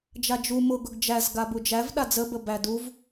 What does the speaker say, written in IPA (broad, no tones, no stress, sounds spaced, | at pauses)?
d͡ʒ a d͡ʒ u m ʊ ɡ ʊ ɡ d͡ʒ æ z ɡ a b u d͡ʒ æ v ɗ a d͡z ə b ə b æ d u v